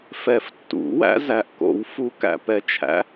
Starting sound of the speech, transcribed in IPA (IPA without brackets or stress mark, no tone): f